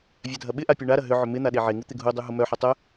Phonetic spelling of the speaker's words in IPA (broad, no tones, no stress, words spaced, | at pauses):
vʲadʱɐɓɪʔa pʲuɳaɾɐ ɦʏʕʏ mɪ n̪aɗeʕeŋu t̪ɪɡʱudˤu ɦʊmœħɐ tˤœ